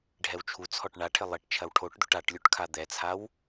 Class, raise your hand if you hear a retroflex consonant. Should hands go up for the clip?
yes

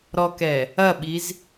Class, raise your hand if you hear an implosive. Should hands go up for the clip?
yes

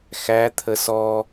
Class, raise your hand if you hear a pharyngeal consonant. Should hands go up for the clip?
no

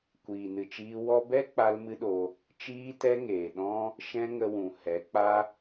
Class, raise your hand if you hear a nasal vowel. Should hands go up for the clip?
yes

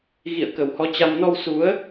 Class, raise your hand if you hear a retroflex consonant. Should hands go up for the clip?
no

